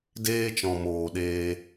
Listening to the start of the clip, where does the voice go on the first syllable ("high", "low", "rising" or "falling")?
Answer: high